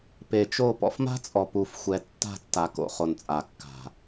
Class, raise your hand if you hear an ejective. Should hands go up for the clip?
yes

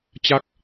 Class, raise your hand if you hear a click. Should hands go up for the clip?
no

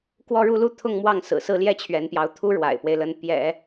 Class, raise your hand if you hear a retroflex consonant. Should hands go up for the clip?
yes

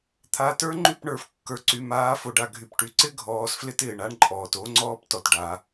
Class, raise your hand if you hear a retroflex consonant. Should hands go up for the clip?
yes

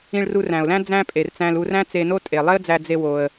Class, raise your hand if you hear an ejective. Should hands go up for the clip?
yes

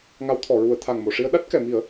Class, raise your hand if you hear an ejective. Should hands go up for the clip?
no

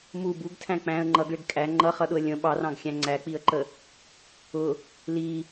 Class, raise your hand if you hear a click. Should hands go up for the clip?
yes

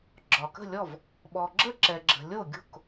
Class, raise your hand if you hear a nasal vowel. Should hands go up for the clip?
no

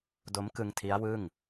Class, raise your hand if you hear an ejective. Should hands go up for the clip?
no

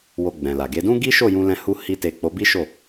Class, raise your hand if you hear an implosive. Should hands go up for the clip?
no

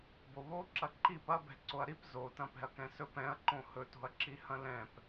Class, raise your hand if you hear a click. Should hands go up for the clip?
yes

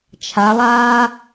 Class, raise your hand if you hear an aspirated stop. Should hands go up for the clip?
yes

